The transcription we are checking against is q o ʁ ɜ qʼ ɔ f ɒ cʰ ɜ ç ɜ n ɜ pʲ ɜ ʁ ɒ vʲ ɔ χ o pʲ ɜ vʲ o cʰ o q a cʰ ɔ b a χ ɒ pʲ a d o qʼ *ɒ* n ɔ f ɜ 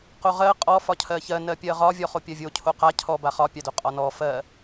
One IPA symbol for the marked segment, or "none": ɒ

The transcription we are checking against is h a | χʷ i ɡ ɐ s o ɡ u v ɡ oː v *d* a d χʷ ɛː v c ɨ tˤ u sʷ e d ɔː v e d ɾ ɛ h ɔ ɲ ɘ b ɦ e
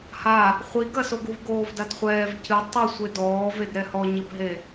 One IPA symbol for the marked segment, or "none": d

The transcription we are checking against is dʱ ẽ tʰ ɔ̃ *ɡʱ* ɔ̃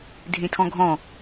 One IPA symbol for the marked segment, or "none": ɡʱ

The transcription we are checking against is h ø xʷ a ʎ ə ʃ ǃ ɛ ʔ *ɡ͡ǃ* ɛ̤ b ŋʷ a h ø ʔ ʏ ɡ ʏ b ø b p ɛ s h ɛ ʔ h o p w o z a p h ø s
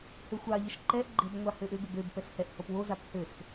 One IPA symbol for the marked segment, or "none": ɡ͡ǃ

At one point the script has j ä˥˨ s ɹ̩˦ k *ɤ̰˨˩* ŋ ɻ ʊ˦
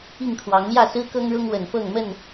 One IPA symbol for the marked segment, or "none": ɤ˦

